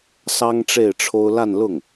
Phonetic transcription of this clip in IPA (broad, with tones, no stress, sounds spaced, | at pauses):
s ɑ˥ ŋ ʈ͡ʂ e˥˩ ɪ̯ ʈ͡ʂʰ o˥ ʊ̯ l a˥˧ n l ʊ˥˩ ŋ